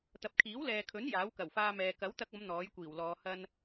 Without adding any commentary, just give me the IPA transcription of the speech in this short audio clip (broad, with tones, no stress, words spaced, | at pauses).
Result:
t̪ɐ˨p̚kʰiː˨˥wlɛː˨kʰɵ˨˥n jaː˨˥wkɐ˨˩wfaː˧mɛː˨ kɐ˨˥wt̪ɐ˧k̚ɐ˨˧m n̪ɔː˨˥jkʷiː˨˩wlɔː˨˧ hɐ˧n